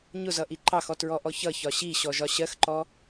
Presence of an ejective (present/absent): absent